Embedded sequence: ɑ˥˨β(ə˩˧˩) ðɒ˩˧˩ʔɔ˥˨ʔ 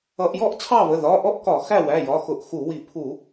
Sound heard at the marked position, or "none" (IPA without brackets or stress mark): ə˩˧˩